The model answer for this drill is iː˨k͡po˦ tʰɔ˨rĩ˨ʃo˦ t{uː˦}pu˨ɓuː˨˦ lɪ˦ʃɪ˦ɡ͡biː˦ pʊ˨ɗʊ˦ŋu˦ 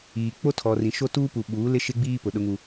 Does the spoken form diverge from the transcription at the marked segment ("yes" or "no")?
no